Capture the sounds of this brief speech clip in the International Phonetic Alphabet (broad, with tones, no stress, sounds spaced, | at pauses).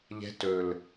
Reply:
ʎ ɛ̤˧˥ t ɵ˨˩ l